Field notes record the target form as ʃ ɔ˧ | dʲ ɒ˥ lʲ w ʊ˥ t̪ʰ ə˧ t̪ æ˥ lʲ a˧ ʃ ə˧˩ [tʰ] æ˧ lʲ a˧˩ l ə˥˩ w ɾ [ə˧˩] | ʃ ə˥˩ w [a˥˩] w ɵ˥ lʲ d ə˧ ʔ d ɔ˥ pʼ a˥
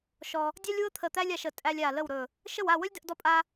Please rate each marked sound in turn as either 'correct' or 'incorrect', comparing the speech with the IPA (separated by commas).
incorrect, incorrect, correct